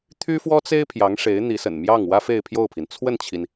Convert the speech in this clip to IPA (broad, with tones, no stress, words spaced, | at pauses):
t̪ʰy˥fwɔ˥t͡se˥ɪ̯ pʰjɑ˧˥ŋʂe˧˥ɪ̯n̪i˧˥sə̰˨˩n mjɑ˥˩ŋwä˥ fe˥˧ɪ̯pʰjo˥˩ʊ̯pʰi˩n t͡sʰwə˥˩nt͡ɕʰi˩n